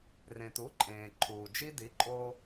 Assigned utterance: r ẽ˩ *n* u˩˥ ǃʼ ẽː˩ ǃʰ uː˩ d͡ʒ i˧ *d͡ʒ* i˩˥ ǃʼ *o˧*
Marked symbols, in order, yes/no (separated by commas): no, no, yes